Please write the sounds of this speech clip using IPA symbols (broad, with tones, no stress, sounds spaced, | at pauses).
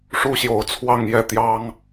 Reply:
ʂ u˦ ɕ j o˨˦ ʊ̯ t͡sʰ w ɑ˥˨ ŋ j ɛ˥˨ t̪ j ɑ˦ ŋ